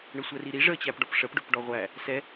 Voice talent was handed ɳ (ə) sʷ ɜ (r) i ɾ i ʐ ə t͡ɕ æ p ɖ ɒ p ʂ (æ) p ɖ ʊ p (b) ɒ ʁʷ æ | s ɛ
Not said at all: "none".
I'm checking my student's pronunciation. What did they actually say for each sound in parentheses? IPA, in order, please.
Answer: ə, r, ə, ɖ

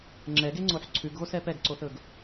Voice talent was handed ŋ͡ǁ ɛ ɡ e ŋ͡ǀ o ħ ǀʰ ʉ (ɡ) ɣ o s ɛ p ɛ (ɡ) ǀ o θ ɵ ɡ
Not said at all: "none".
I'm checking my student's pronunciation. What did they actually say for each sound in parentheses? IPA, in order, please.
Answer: ɡ, ɡ

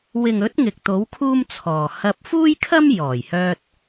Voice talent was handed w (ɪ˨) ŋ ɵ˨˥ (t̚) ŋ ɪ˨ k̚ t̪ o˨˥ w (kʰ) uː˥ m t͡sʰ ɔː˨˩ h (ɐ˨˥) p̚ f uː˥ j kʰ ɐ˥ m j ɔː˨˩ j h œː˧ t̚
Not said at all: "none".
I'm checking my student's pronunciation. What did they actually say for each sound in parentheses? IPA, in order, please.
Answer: ɪ˨, t̚, kʰ, ɐ˧

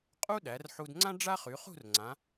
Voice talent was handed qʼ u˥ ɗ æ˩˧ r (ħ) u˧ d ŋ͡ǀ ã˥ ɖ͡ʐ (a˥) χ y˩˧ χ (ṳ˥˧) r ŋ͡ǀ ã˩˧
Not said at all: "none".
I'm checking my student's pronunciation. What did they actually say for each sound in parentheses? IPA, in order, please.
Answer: ħ, a˥, ṳ˥˧

